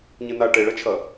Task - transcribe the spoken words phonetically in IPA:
ɲɨna ʈeɭɐt͡ʃʰɐ

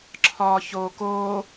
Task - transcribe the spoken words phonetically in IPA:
ǁʰɒːçoːkoː

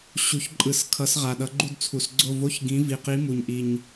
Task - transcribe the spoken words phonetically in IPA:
ɕu˨˦çǃʼɯ˧˩˧s kʰʌ˨˦sʁa˨˩ɗʌ˨˦ɡ͡ǃu˥˧d t͡sʰu˧˩˧sɡ͡ǀo˥˧ vo˧˥˧çɡĩ˨˦ vi˨˩qi˨˦ mu˨˩ɲʔi˨˩ɲ

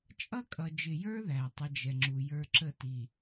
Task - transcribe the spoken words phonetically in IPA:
t͡ʃʼʌ˦kʼʌ˨d͡ʒɪ˨jə˞˦ ðæ˨tˤə˦d͡ʒɛ˨ŋ͡ǁu˨ jə˞˦ǁə˦˨ti˨

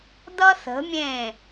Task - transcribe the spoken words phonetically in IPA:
d̪ʌ˦θə̤˨˦mʲẽ˦˨

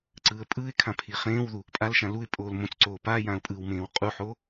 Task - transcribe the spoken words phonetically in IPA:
ǀɯːə̯pʼɯːɪ̯kʰã pʰiχẽːwðu | pʼalʃã luɪ̯ pʼoːlmõt͡sǀoː pa jãʊ̯pʼɯwmẽːw qʼuħo

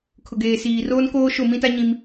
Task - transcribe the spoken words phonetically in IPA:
kʰʊ˨ɡeː˨siː˨ roː˦nkoː˦ ʃo˦˨mĩ˦ta˦ ɲĩ˦m

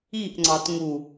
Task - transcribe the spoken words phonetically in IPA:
iʔŋ͡ǀɑt ŋu

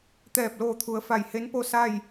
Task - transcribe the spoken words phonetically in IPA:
t̪ɛː˧˩p̚loː˧˩t̪ʰu˩˧ə̯ fa˧˩jhe˧˥npo˥˨sa˥˨j

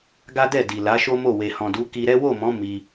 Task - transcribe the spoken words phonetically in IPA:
ɡa˦ dɛ˦˨di˨ la˨˦ʃo˦mo˦˨ we˨hɔ̃˨du˨˦ ki˧ɾɛ˦ wo˦˨mɔ̃˨˦ mi˧

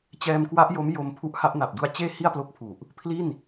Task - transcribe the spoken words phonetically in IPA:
t͡ɕɛː˧mkwa˦˥ʔjo˦˥m jo˧mpʰu˦˥ʔha˦˥ʔ na˨˩p̚du˧a̯t͡ɕeː˥˩ hi˥˩a̯plo˦˥k̚pʰu˨˩ʔ | pʰli˥˩n

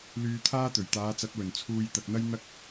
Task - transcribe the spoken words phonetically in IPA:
lyː˧t̪ʰaː˥t̪ɵ˨˩ɥ t̪aː˨˧t͡sɐ˨˥t̚wɵ˨˩nt͡sʰuː˧j t̪ɐ˨k̚n̪ɐ˥j n̪ɐ˥k̚

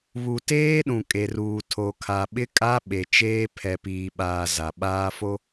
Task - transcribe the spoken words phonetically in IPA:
βu˨teː˦ɗũ˨ kʼe˨ruː˨ tʰo˨kʰa˨ ɓɪ˦kʼa˦ ɓe˨t͡ʃeː˦ pʰɛ˨piː˨ɓaː˨ za˨ɓaː˦fo˦

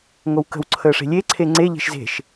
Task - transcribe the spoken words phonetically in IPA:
ŋowkə̤w ǀʰəːʂe̤lʲe ǀʰeŋ͡ǀe ʎe̤ʃze̤ʃ

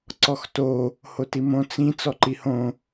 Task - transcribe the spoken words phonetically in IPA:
ǀɔxto | hotimõ t͡sĩ t͡sɔǃihõ

